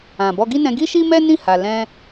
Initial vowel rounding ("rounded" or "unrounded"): unrounded